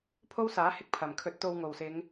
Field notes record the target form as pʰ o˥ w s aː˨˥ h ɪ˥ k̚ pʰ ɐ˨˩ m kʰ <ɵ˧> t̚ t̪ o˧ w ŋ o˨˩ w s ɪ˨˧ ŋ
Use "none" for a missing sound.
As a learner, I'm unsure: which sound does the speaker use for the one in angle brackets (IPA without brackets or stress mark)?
ɵ˧